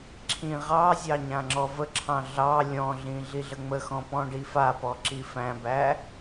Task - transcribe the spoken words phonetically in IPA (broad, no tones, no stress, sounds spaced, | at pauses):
ǁʰ ĩ ʁ ɑ zʲ ɑ ɲ ã ŋ͡ǁ ɔ v ə ǁʰ ɑ̃ ɮ ɑ lʲ ɔ̃ ɮ ĩ ɮ i ɮ ə ŋ͡m ə x ɔ̃ p ɔ̃ ɖ i f a p ɔ ǁ i f æ̃ b æ